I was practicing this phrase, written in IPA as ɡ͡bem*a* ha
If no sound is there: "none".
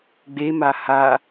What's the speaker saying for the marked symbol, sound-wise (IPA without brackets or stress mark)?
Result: a